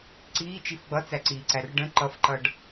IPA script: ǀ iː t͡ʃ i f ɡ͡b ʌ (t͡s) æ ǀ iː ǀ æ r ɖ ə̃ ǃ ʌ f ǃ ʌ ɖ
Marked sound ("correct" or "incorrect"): correct